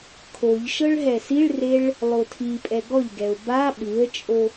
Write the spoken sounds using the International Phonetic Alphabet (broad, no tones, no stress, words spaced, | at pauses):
kʰoʎ ʃɤɭɦɛsiɭreɭ | lˠotʰipʼɛ ɡɔʎɡɛʊ̯ ba ɓɯə̯t͡ʃʼo